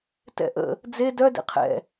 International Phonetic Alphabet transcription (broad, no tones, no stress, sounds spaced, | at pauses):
t ɛ̰ ʔ ə̰ | d͡z e d œ d ḛ qʰ ɛ̰